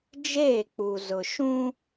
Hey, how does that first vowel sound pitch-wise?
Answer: falling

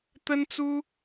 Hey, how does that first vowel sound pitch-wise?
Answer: high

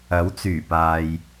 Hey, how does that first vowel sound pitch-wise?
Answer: rising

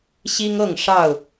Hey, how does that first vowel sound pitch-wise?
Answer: high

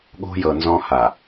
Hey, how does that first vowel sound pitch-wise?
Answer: high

